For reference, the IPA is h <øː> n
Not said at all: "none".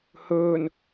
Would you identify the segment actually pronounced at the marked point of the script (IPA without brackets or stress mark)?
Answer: ɵː